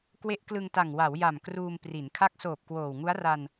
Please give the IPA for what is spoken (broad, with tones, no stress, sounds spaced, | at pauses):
k w e˦˥ ʔ k l ɯ˧ ŋ t a˨˩ ŋ w a˩˦ w j a˨˩ m k r uː˧ m p r i˩˦ n kʰ a˦˥ k̚ s oː˨˩ p̚ k w oː˨˩ w ŋ u˦˥ a̯ r a˧ n